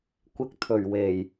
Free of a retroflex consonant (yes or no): yes